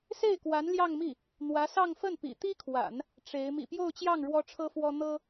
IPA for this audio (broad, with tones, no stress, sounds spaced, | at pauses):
s e˥˩ ɪ̯ k w a˧˥ n l j ɑ˥˧ ŋ m i˥˩ | n̪ w ä˧˥ s ɑ˥˧ ŋ f ə˥˩ n p ḭ˨˩ t̪ i˥ kʰ w a̰˨˩˦ n | ʈ͡ʂ e˧˥ ɪ̯ m ḭ˨˩ p j o˥˧ ʊ̯ t͡ɕ j ɑ˥˩ ŋ ɻ w ɔ˥ ʈ͡ʂʰ ɤ˥ f w ɔ˥ n̪ ɤ˥